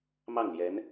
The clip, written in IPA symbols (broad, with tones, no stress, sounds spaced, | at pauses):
m ɑ˥˩ ŋ l j ɛ˧˥ n